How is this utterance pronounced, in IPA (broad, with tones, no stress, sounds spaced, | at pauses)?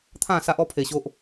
t̪ʰ ã˥˧ s a˦ ʔ ɔ˦ pʰ e˧ ɕ o˦ ʔ